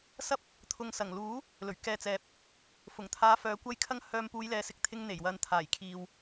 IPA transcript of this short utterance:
sɐ˥p̚ | t̪ʰʊ˨ŋsɐ˨˩ŋluː˨˥ | lɵ˨˩ɥkɛː˨t͡sɛː˨˥p̚ | fʊ˨˩ŋt̪ʰaː˨˧ fœː˨kʷɐ˥jkʰɐ˥ŋ hœː˧m puː˨˧jlɛː˨sɪ˨˥k̚t̪ʰɪ˧ŋ n̪e˨˩jwɐ˨n t̪ʰaː˨˩jkʰiː˨w

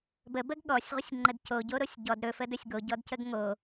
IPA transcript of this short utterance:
bəbəɡ ɠɔsʲʁʷəsʲŋ͡ǃəd coɟoɾosʲ ɟɔd ɾɵfədɵsʲ ɡoɟɔdcəɡ ŋo

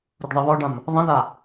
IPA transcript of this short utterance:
ɾuɖðˤeβɔɖãm | ðˤə̃ða

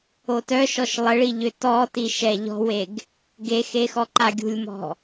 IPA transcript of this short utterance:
otœʃɔʃ lˠəɭiʎø tɔtiʃɛ ʎɔ̤weɡ | ɡexexɔǃa ɡʲṳlʲmɔ̤

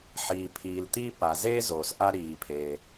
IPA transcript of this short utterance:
ħiː˩ pʰiː˩lt̪i˥ pa˩zeː˥ zoː˩s ʔa˧ ɾiː˩pʰeː˩

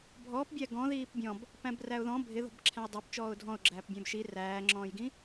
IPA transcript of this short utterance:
bʱɔːpbʲæ ɡɔ̃ ðiːpbʲɔ̃b | pæ̃bræʊ̯ðɔ̃ bʱɪðɔ̤b ǁʰæ̃jdˤə˞p t͡ʃɔːʊ̯dʱɔ̃ʊ̯ɡ͡ǁæːp bʲæ̃bʃi ræːŋ͡ǁɔ̃ːjɡĩ

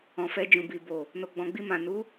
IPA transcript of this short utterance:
ɔ̃˨fɛ˧d͡ʒũ˨ bi˨bo˨ | no˨ɡ͡bɔ̃˨ɡ͡bi˧mã˨ nu˨˦

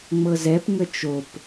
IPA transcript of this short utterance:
ŋ͡mɤzɛp ŋət͡ʃop

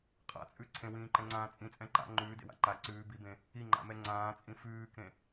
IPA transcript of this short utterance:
qʼa̰t͡sʼʉ ǀʰẽwĩːǃɛ̃ŋ͡ǀãː t͡sʼĩt͡sʼɛ̃ ǃa̰ ŋ͡ǃʉːdḛwa̰ ǃa ǀʉː bibẽ | iŋ͡ǃa̰mɛ ŋ͡ǀãːt͡sʼĩ fʉːkẽ

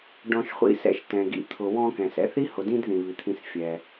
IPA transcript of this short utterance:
ɖɔ̃˨ʃχʷḭ˨sɛ̰˨ʃ tɛ̃˩ ɡḭ˩t̪ʰʊ˩ wɔ̃˦kɛ̃˩s ɛ̰˦θi˥ hʊ˨dĩ˥dðĩ˩ βi˩t̪ʰĩ˨s fʲɛ˩

